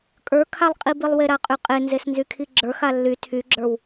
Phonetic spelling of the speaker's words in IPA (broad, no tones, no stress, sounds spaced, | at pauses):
kʼ ə˞ kʰ a lˠ qʼ i b i lˠ w e ɾ a qʼ y qʼ e n z e s n z y kʰ i ɡ͡ǁ ə˞ x a lː y tʰ y ɡ͡ǁ ə˞ w